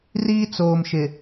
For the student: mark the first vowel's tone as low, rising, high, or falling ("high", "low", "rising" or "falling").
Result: high